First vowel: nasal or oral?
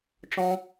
nasal